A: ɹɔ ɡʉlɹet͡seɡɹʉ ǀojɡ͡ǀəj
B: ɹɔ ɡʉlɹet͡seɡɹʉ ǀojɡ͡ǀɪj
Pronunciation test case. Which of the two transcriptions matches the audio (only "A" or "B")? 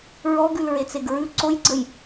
A